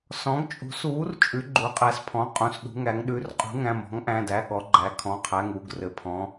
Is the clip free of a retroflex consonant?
yes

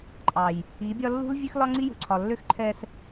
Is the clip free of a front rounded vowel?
no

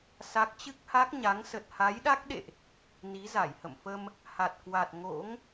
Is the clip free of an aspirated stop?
yes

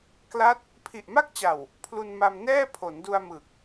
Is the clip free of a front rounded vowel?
yes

